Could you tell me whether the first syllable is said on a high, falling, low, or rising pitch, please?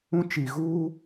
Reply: high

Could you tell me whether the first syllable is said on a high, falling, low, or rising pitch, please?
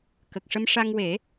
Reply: low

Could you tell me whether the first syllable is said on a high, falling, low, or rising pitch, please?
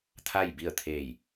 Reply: falling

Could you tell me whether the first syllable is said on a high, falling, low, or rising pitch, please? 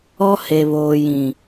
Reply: high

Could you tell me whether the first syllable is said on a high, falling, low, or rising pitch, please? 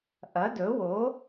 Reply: rising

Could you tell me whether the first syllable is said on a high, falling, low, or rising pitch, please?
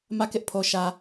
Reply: falling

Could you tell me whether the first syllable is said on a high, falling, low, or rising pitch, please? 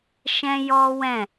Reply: high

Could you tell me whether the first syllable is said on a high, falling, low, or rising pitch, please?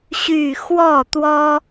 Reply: falling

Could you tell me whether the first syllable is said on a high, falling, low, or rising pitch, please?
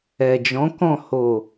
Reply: low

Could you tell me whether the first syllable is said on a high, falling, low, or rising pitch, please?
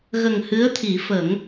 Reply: low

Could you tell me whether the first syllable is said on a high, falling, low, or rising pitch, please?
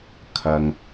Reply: low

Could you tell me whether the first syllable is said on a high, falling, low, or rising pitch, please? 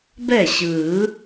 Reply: falling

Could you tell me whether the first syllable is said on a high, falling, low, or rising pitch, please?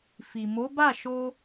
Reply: low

